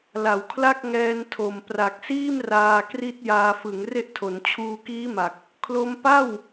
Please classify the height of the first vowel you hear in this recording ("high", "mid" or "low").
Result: low